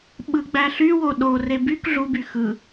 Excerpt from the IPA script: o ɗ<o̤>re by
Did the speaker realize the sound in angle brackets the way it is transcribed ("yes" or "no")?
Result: no